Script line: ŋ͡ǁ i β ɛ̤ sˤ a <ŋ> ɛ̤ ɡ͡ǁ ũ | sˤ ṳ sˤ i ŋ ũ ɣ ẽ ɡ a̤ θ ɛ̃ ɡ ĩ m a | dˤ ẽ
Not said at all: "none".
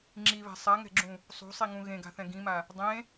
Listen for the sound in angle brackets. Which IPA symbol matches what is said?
ŋ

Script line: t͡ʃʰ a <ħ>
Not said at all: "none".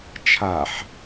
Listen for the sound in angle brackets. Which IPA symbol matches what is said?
ħ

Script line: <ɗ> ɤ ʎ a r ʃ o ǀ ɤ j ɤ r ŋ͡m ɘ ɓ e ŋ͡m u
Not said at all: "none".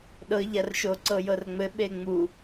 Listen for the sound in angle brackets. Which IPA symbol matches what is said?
ɗ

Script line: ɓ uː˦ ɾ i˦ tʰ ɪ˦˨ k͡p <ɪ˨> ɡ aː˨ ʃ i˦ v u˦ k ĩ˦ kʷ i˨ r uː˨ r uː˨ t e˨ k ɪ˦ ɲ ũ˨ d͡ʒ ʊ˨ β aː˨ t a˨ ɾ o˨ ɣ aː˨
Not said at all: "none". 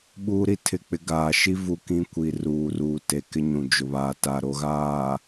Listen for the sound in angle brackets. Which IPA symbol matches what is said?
ɪ˦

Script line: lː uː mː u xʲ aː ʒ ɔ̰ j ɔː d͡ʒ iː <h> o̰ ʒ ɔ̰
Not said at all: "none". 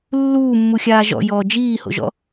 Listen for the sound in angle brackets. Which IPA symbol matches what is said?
h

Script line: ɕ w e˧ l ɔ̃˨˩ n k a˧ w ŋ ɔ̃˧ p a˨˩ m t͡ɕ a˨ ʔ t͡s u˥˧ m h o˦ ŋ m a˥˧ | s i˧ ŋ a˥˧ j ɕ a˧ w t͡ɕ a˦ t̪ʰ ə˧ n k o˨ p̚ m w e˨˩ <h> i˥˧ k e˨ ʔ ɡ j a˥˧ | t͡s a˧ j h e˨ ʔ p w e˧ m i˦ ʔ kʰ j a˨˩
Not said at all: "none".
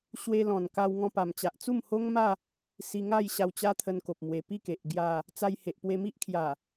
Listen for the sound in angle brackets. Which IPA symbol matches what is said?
p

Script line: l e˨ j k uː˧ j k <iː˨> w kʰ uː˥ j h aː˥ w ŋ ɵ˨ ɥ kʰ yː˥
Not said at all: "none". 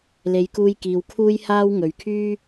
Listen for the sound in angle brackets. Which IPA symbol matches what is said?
iː˨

